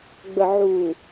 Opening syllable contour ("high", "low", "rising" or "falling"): low